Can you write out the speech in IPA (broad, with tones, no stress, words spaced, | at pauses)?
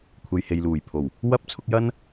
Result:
kʷʰe˨jhe˨jluː˨˩jpʰo˨˩w | wɐ˥p̚ t͡sʰʊ˨˥k̚jɐ˥n